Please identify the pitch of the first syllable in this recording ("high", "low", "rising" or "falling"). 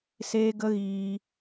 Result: high